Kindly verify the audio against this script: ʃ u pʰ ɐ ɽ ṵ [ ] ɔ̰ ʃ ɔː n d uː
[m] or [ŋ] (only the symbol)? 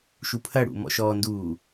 m